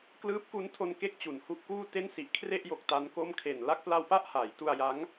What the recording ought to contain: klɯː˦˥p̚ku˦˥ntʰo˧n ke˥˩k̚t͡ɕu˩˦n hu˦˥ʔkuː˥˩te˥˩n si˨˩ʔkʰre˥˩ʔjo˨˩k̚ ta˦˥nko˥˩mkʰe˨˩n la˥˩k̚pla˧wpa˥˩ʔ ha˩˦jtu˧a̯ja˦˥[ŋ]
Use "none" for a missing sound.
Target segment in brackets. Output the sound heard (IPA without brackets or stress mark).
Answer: ŋ